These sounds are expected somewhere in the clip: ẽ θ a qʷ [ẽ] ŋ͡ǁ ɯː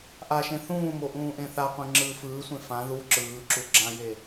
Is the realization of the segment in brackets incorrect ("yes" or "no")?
no